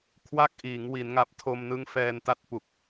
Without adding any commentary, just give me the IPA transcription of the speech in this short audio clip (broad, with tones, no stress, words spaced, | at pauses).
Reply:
kʰwa˥˩k̚ʔiː˩˦ŋ wi˩˦nŋa˨˩p̚tʰo˧m nɯ˦˥ŋfɛː˧nta˥˩t̚pu˨˩k̚